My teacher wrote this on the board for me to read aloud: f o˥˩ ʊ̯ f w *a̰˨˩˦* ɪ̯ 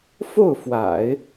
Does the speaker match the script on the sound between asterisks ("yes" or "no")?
yes